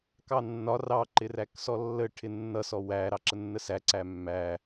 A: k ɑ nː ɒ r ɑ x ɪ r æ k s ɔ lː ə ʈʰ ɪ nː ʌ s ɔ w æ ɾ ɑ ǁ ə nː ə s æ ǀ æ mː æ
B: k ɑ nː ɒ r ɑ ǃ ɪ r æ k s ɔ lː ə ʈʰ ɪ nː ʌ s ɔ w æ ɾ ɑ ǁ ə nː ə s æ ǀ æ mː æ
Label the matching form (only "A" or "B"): B